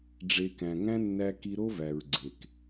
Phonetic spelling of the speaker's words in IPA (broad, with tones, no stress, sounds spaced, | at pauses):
ɖ͡ʐ e˨ k æ̃˨ ŋ æ̃˦ nː æ˧ k i˧ ɾ o˦ v æ˨ ɹ ɡ͡ǀ e˨ k